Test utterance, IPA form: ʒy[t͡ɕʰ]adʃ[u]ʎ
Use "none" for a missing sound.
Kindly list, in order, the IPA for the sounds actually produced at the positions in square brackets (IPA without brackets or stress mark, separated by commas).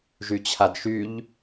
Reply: t͡ɕʰ, y